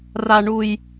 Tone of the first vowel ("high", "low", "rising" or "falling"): low